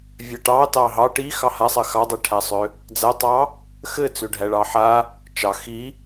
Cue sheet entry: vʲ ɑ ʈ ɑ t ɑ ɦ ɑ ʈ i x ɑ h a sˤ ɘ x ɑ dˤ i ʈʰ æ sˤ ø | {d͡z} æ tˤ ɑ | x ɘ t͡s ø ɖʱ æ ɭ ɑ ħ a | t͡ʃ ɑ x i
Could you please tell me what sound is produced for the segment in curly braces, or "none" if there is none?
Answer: d͡z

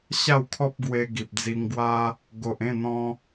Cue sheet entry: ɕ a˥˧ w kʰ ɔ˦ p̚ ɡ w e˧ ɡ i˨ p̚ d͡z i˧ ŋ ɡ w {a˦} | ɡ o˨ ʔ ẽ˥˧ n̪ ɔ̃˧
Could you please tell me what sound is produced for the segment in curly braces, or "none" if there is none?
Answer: a˦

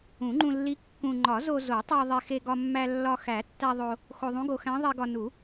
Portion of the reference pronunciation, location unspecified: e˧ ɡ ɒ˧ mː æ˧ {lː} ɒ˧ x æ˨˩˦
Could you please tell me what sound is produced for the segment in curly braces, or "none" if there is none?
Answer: lː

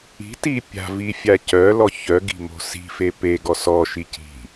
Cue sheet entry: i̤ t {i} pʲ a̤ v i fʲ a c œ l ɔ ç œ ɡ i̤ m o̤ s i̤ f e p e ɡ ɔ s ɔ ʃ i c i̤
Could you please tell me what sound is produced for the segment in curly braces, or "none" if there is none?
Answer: i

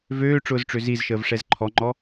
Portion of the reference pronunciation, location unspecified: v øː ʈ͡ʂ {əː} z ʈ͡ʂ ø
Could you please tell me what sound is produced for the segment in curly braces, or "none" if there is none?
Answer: ʊː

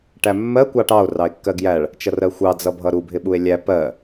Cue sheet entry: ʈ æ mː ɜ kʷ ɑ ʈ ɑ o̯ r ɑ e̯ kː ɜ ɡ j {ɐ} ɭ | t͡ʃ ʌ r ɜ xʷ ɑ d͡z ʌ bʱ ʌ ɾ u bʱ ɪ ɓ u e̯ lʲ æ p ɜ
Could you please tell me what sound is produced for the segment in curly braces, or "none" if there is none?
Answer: æ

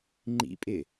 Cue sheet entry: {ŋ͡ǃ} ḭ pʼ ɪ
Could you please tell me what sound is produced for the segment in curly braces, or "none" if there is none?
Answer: ŋ͡ǃ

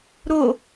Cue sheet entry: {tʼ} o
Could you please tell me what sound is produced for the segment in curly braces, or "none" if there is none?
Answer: ɾ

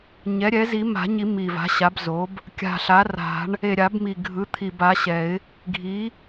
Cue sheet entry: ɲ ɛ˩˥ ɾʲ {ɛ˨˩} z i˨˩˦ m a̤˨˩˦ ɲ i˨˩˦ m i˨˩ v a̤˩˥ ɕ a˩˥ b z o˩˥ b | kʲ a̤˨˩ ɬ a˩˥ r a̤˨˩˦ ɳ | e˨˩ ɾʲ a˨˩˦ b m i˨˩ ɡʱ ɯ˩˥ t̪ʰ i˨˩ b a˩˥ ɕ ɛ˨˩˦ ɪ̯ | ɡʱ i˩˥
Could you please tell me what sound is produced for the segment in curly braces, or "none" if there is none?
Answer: ɛ˩˥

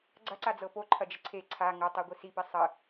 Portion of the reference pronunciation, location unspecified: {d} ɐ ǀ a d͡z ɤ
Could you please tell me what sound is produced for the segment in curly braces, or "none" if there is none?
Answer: ɡ͡ǀ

